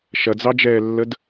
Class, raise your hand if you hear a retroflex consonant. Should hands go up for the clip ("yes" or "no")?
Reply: no